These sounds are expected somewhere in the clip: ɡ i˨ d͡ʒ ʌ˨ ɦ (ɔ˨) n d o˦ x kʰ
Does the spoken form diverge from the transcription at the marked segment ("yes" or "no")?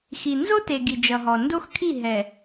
no